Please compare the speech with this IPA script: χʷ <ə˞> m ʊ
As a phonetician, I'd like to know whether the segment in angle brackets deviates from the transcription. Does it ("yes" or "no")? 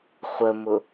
yes